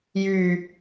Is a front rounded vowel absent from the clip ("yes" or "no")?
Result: no